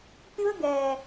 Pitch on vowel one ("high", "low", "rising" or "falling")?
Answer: high